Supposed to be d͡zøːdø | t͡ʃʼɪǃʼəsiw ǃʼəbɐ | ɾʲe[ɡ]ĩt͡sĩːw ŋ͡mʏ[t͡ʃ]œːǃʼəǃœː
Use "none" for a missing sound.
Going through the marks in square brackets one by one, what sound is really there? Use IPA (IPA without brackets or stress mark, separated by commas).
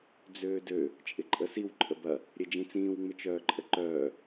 d͡ʒ, t͡ʃ